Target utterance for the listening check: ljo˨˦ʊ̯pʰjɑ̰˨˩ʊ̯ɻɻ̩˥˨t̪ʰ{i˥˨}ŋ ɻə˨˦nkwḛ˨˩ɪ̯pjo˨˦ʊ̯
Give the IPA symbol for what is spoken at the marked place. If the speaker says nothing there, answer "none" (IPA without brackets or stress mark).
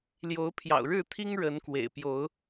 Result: i˦